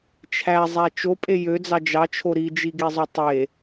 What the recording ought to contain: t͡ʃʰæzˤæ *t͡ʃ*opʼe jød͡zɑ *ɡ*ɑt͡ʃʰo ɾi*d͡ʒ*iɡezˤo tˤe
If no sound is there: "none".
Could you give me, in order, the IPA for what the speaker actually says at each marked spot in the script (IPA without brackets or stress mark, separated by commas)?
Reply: t͡ʃ, d͡ʒ, d͡ʒ